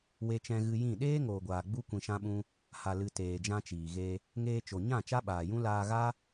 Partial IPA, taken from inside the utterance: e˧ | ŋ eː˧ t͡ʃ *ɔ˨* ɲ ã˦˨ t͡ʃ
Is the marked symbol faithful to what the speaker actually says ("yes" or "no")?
no